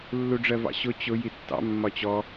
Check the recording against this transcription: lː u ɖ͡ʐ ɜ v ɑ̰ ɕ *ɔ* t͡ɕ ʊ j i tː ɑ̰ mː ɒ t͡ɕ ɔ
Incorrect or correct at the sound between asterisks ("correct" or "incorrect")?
incorrect